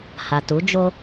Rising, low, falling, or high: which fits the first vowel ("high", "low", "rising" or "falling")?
low